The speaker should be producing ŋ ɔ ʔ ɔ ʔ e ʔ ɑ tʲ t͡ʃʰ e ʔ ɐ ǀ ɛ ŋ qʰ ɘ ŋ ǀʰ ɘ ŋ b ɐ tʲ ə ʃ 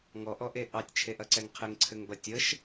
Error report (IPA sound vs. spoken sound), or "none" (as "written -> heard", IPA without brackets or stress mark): none